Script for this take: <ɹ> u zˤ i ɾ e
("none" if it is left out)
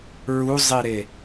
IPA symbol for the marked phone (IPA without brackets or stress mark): ɹ